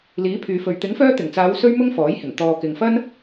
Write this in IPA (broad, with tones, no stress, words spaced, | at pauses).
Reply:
liː˨˥pʰyː˨fɵ˨ɥ t̪ɪ˨˥ŋfœː˧t̪ɪ˨˩ŋt͡saː˨˧w sɵ˥ɥmʊ˥ŋfɔː˨˥jhɪ˨˩ŋ t̪ɔː˨kɪ˨ŋfɐ˥n